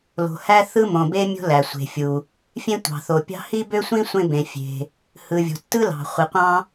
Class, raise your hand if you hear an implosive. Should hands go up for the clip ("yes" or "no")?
no